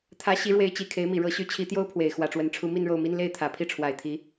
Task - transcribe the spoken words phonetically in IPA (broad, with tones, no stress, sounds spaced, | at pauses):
t̪ʰ ä˧˥ ɕ i˧˥ ɻ w e˧˥ ɪ̯ t͡ɕ i˨˩ kʰ e˧˥ ɪ̯ m i˨˩ ɻ ɤ˧˥ ɕ y˧˥ t͡ɕʰ i˧˥ t̪ j o˥ ʊ̯ pʰ w e˨˩ ɪ̯ x w ä˧˥ ʈ͡ʂ w ə˧˥ n ʈ͡ʂʰ u˥ m i˥˧ n ɻ o˥˩ ʊ̯ m i˥ n l e˥˩ ɪ̯ t̪ʰ ä˨˩ pʰ i˥˩ ʈ͡ʂʰ w a˨˩ ɪ̯ t̪ʰ i˧˥